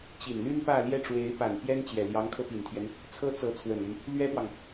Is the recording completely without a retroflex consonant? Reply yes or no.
no